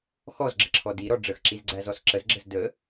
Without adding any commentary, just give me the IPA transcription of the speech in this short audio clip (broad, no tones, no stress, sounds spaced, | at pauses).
x ɔ z ɡ͡ǁ ə ǁʰ ɔ d i ɾ ɔ ɖ͡ʐ ə x ǁ i z ɡ͡ǀ æ z ɔ s ǁ ə z ɡ͡ǁ ə z d ə